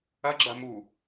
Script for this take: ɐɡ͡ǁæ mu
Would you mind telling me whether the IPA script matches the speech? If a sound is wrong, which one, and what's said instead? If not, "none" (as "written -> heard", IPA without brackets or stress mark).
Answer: æ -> ɐ